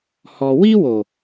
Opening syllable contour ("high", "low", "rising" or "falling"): low